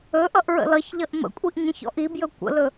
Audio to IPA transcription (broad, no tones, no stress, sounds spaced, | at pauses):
ɵ ʔ ʌ ʔ ɹ ə̰ l ʌ ç ʎ ʌ ʔ m ə̰ kʷʼ i ʔ ɲ ə̃ ç ɔ̰ ʔ i b j ɵ kʷ ə̰ l ɵ